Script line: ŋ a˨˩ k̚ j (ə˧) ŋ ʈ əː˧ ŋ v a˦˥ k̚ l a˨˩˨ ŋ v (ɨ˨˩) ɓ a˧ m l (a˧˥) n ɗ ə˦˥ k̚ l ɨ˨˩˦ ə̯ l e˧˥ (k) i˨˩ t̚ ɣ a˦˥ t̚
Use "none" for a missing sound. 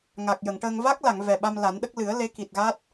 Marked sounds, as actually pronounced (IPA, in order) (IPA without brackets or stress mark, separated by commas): ə˨˩˨, ɛ˨˩, a˨˩˦, k